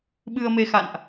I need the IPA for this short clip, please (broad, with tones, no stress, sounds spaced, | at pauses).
ɓ ɨ˧ ə̯ m e˧ x a̰˧˨ n ʔ